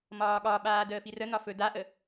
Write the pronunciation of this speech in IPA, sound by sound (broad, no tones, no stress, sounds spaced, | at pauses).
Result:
m ɒː ɠ ɒ ɓ aː d əː f i r ə n ɒ f ɵ d a ʔ ə